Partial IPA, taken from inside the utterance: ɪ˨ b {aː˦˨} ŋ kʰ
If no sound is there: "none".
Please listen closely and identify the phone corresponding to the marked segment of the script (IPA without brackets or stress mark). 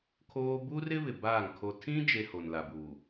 aː˦˨